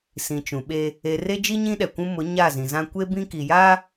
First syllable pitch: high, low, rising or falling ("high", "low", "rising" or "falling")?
low